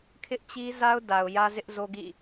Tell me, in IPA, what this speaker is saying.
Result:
kʰ ɪ˦ ʔ t͡ɕ i˦ z a˦ ʊ̯ d a˨ ʊ̯ j ä˦ z ɪ˦ ʔ z o˦ ɡ ḭ˦˨

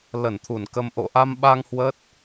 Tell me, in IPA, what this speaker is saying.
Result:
l ə˧˩ n t̪ʰ u˧˩ n k ə˧ m ʔ o̰˧˨ ʔ a˧ m ɓ a˧ ŋ h w ə˦˥ t̚

